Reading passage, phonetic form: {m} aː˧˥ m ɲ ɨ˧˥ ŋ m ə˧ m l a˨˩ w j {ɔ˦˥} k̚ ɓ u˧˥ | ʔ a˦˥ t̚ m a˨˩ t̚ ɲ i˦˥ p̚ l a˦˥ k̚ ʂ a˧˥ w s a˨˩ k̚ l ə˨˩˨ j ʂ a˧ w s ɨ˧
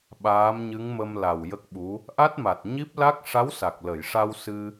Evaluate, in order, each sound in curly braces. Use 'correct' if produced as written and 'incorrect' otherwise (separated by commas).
incorrect, incorrect